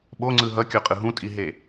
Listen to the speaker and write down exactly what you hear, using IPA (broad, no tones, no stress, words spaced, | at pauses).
ɓoŋ͡ǀɯ ɦʌkʲoqʼɯ ɦũtʼiɦe